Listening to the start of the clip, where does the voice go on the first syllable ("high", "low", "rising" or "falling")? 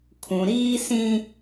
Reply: low